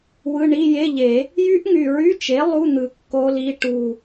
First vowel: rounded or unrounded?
unrounded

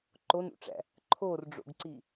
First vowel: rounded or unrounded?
rounded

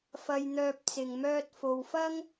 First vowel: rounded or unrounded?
unrounded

